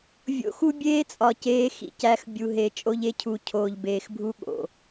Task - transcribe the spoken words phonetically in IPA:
vʲo̰˨xu˦ bʲeː˦t͡sʼɒ˨ ceː˦xḭ˨cæ˦x bʲu˨ɦe˨ t͡ʃʼo˦ʎe˦cʰu˨˦ cʰoː˨ʎbeː˨xbʱu˦ ɠo̰˨

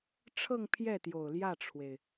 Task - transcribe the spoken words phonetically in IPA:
ʈ͡ʂʰɤ˥˧ŋpʰjɛ˥˩t̪jo˨˩ʊ̯ ljä˥˩ʈ͡ʂʰwe˩ɪ̯

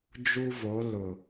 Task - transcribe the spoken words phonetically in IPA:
d͡ʒu˦vo˨˦ lʊ˨

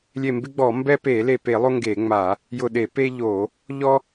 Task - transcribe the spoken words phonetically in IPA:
lʲe˧˩mbɪ˦ɡ͡bɔ˧˩˧ mbɛ˦pe˧˩˧ le˧˩pe˧˩˧lˠo˦ ŋɡe˧˩˧ŋ͡ma˧˩˧ | jʊ˧˩ɗe˧˩˧ pe˦ʎo˧˩˧ | ʎɔ˦

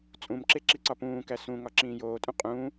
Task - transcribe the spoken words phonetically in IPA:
t͡sʼũmǁe ǁiǀɒpũːkæ sũŋɒ ǁĩːjoːtʼũ qʼũː

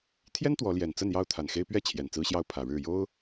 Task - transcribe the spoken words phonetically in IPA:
t̪ʰjɛ˦n t̪wɔ˨˦ljɛ˨˩n t͡sə˥˨njɑ˥˨ʊ̯t̪ʰa˨˩n xe˦ɪ̯pɥɛ˥˨ t͡ɕʰjɛ˨˩nt͡sɹ̩˦ɕjɑ˦ʊ̯ pʰä˨˩ɻɻ̩˥˨ jo˦ʊ̯

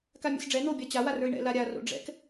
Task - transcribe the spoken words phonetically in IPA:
kamʲɛ̰sɖ͡ʐɛ n̪obʲa t͡ɕawarə˞i̯ ɳɛ̰ laɾʲa ro̰ɖ͡ʐɛ̰k

